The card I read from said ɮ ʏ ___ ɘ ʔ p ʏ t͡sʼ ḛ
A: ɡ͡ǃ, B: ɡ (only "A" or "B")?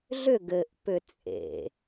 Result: B